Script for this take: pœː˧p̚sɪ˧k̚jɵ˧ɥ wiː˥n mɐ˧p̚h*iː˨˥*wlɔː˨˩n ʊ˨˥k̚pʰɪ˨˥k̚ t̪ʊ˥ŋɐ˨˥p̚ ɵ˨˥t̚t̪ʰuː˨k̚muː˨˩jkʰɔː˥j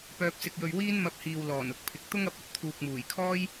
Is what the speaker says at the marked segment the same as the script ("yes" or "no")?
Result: no